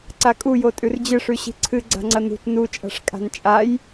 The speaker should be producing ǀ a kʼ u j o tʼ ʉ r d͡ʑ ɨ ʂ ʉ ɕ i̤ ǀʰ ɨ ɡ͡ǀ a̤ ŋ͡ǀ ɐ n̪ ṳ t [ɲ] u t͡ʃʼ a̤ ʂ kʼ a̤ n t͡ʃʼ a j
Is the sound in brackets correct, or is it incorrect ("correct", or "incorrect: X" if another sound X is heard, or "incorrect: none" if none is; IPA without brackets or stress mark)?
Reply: incorrect: n